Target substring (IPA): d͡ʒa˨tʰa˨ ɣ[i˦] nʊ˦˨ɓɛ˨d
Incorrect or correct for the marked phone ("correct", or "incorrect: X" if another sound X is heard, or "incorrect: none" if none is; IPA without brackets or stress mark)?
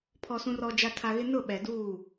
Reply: incorrect: ɪ˦